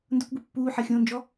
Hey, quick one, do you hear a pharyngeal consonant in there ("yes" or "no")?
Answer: yes